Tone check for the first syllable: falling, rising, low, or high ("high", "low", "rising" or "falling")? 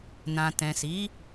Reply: low